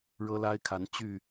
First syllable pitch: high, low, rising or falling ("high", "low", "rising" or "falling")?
high